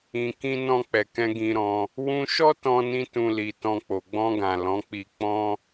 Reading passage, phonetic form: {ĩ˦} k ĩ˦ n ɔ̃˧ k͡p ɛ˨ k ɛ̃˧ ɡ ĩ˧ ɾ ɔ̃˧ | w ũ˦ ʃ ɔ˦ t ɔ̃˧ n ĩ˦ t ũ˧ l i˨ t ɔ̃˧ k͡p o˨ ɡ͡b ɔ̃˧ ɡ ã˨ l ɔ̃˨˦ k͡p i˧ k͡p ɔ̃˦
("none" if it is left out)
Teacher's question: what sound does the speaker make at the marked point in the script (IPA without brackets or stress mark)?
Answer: ĩ˧